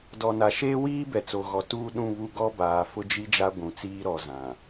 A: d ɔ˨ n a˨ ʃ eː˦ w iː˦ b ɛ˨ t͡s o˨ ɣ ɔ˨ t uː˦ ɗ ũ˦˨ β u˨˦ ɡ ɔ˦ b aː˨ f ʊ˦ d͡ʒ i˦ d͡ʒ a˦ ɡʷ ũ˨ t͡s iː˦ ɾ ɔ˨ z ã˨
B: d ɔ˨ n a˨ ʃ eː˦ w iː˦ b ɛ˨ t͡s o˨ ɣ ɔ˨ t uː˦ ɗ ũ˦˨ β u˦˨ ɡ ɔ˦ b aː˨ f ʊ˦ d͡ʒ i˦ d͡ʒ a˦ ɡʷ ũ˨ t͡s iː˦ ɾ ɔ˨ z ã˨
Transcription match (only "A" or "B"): B